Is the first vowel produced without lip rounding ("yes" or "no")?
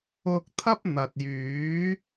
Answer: no